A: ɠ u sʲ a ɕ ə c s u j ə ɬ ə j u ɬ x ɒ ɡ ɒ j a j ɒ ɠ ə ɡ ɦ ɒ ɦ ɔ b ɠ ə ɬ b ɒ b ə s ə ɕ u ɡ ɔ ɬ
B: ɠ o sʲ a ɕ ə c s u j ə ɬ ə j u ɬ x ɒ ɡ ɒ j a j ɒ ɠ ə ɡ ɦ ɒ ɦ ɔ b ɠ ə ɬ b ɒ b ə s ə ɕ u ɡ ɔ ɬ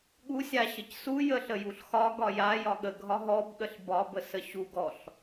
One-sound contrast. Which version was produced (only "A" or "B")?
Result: A